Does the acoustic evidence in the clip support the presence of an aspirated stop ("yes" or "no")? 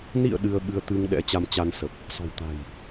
no